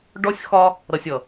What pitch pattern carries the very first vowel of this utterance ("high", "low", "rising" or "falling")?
high